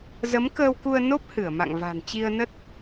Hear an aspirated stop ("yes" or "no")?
no